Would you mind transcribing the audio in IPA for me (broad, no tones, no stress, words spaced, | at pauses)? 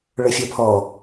ɭɵfʲɘpʰɔ